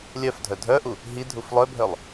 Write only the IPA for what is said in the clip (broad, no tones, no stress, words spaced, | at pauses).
lʲœfdʱœ dʱœʔu | ɦi dʱuflˠœbʱœlˠ